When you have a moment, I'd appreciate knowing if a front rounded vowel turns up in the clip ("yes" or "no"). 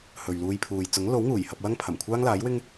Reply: no